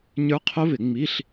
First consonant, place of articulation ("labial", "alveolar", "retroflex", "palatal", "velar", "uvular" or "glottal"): palatal